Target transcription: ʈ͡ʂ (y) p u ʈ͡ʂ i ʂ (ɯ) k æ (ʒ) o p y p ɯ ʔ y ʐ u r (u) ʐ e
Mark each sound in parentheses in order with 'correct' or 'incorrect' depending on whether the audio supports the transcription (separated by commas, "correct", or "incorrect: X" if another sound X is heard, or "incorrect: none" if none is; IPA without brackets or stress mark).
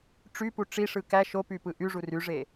correct, correct, incorrect: ʃ, incorrect: y